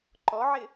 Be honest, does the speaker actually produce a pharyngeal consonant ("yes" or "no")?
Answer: yes